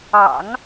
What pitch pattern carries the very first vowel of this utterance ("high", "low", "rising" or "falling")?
low